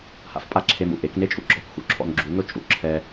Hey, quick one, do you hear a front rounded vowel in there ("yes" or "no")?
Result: no